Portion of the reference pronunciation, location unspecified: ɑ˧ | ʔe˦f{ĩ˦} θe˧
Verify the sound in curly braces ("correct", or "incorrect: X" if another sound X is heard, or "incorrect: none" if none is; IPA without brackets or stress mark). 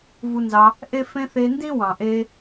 incorrect: ẽ˦